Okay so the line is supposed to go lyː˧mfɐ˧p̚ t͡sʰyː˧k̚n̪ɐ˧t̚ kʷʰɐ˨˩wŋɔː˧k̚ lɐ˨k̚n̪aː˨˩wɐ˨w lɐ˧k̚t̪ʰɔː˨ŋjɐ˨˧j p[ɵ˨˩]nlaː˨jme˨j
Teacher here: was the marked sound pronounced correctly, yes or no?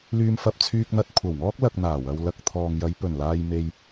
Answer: yes